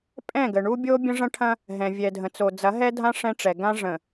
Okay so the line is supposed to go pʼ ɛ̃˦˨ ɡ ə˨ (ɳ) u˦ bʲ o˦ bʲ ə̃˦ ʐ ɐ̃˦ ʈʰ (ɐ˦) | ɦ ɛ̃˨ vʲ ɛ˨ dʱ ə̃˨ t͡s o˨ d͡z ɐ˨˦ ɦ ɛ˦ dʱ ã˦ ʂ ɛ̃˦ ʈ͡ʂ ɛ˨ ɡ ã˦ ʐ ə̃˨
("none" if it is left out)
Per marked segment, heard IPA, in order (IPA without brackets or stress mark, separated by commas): ɳ, ɐ̃˦